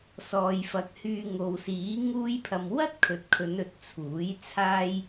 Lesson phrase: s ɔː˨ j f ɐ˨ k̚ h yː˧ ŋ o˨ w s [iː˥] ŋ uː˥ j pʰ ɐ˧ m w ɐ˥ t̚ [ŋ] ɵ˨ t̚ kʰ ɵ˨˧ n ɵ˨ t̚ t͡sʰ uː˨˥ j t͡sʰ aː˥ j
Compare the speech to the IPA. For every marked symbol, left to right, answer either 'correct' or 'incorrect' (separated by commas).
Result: incorrect, incorrect